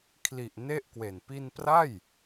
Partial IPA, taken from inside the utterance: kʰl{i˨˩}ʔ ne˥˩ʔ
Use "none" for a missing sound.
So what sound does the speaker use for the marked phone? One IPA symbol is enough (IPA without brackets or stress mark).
i˨˩